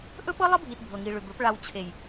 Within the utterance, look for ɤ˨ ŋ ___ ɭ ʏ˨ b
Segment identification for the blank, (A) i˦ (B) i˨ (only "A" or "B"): B